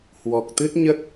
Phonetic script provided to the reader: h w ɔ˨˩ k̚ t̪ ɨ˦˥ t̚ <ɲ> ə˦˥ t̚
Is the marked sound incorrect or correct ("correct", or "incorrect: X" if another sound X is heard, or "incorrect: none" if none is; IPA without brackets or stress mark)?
correct